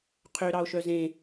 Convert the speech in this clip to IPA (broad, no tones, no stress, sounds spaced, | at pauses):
qʰ ø ɾ ɑ o̯ ʃ œ z ẽ